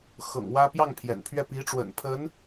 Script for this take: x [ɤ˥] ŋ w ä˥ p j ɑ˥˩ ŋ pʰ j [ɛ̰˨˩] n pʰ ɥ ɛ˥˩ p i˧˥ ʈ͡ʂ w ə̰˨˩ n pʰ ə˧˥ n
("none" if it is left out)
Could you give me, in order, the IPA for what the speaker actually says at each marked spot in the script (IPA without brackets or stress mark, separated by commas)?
ɤ̰˨˩, ɛ̰˨˩